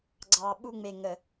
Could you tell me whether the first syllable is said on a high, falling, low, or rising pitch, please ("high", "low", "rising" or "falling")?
low